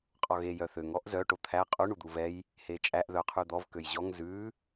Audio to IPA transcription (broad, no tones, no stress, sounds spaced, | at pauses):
qʼ ɔ ɣ e j œ θ ø ŋ ɔ ʔ z œ ʈ o t̪ʰ æ qʼ u ɳ u d̪ u v ɛ j | h e t͡ʃʼ æ ʔ ð œ qʰ ʉ d̪ ɔ v k ø j ʑ ɔ ŋ z ʉ